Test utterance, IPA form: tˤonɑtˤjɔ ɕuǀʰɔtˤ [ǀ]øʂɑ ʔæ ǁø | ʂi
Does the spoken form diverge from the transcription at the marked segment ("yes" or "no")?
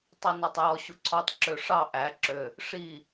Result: yes